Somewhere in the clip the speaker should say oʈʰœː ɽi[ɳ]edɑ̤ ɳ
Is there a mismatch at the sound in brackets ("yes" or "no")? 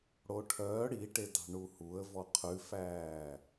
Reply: yes